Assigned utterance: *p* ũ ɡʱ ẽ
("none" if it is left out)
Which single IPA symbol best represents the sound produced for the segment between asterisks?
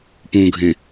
p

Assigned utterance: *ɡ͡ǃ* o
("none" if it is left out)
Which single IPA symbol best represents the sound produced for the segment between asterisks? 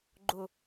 ɡ͡ǃ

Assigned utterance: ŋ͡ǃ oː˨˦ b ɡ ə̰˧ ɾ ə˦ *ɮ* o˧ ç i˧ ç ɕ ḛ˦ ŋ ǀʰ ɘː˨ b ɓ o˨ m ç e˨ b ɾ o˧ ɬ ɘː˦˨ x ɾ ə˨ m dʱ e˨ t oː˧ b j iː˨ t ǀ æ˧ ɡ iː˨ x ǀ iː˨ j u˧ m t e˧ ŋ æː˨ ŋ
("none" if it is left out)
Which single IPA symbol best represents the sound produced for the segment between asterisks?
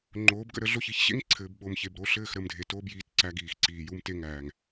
ɮ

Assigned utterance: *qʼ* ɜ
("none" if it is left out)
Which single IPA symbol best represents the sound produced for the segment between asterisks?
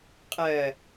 qʼ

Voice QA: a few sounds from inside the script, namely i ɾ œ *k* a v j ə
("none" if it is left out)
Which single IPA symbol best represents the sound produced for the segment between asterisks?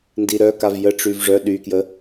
k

